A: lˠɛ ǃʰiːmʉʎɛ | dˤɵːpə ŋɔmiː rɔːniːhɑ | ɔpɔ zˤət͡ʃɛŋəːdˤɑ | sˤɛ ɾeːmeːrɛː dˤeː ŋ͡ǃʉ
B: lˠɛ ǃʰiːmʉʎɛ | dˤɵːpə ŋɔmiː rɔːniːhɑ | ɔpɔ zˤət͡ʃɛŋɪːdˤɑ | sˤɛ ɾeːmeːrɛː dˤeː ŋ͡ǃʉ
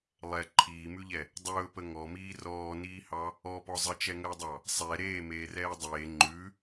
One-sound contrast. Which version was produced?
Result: A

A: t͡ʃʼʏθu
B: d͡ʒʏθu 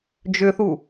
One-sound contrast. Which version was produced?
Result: B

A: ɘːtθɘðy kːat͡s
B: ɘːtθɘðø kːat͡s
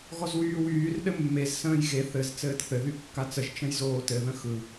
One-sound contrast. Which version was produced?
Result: A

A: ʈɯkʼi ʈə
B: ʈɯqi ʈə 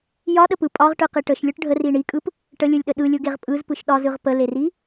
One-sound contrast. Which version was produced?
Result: B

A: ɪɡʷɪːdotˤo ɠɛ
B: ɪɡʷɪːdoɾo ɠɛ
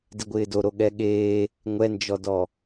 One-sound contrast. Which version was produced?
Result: B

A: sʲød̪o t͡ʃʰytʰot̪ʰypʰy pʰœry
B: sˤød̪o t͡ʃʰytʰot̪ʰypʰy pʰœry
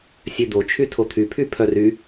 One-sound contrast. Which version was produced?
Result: A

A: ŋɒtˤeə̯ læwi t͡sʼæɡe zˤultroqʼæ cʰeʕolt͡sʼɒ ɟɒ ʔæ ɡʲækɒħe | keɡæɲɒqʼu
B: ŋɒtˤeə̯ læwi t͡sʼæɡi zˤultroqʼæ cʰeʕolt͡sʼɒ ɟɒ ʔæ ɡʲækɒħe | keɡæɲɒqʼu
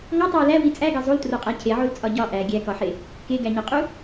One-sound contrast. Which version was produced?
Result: A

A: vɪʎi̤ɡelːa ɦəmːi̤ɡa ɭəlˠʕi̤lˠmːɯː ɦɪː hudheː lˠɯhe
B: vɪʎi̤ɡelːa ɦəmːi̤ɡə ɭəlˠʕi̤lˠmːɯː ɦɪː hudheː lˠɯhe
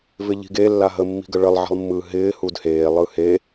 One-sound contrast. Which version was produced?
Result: B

